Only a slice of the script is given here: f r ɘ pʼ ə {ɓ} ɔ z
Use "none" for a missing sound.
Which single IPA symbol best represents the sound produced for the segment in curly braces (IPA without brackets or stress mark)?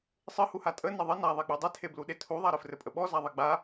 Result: ɓ